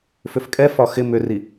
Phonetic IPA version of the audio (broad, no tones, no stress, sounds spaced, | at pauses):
f ʏ f kʼ ɛ f ɒ x ɪ m ʏ r i